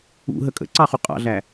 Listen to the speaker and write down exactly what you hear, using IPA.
ṵ ɦ ə kʼ ə̰ ǀ ɑ χ u qʼ ɑ̰ ɮ æ

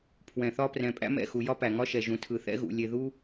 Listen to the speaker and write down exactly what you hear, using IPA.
pʰ w ɛ̃˨ θ ɒ˦ p r ɛ̃˨ pʼ æ̰˦ m ɛ̰˦˨ x u˨ j ɒ˦ p æ˨ ŋ ɒ˦ ʃ ɛ˨ ʒ ũ˨ tʰ ɯ˨ θ ɛ̰˦ ɣ ṵ˨ lʲ e˨ ð u˦

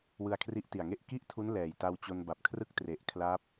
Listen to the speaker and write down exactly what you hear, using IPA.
w ɯ˧ a̯ kʰ r i˦˥ ʔ t i˨˩ a̯ ŋ e˥˩ ʔ k i˥˩ ʔ tʰ u˦˥ n l ɛː˨˩ j t a˧ w t͡ɕ o˧ n b a˨˩ p̚ kʰ r ɯ˥˩ k̚ t r e˨˩ ʔ kʰ l a˦˥ p̚

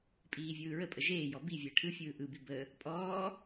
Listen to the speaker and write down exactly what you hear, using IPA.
pʼ iː vʲ ɯː ɹ ə pʼ ə ʒ eː j ɔ b i vʲ əː ʈʰ ɯ fʲ ɯː ʔ ɯ b i b ə | pʼ ɔː

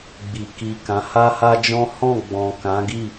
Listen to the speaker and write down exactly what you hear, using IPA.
ɡ͡b i˨ k i˨ k ã˨˦ h a˦ h a˦ d͡ʒ ɔ̃˦ h ɔ̃˦˨ ɡ͡b ɔ̃˨ k ã˨˦ ɡ i˦˨

